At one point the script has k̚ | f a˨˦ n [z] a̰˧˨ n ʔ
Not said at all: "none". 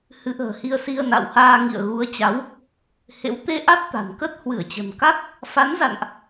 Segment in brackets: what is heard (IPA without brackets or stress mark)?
z